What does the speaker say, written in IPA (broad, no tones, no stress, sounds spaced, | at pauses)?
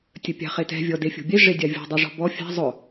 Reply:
tʲ ə pʲ a̤ χ e t ɛ̤ vʲ ɔ d e fʲ o̤ bʲ e ʐ e dʲ a vʲ o̤ dˤ y ʐ ɔ̤ b ɔ fʲ a̤ zˤ ʊ